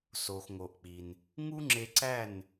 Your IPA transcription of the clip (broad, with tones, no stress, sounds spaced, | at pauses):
s o˩ x ŋ o˩ ʔ k͡p i˩ n | ŋ u˥ ŋ͡ǁ e˧ ǀ æ˥˩ n